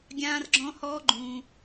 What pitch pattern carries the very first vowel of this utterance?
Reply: high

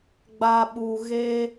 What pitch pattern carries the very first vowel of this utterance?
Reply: low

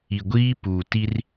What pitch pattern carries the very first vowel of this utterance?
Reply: low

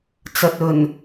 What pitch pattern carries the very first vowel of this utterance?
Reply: low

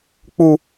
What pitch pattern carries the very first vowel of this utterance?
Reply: low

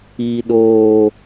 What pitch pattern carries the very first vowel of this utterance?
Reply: low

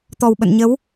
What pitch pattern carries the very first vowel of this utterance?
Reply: low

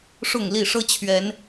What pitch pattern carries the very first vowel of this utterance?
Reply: falling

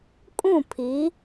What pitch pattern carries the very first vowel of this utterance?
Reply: falling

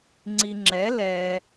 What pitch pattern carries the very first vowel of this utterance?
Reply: low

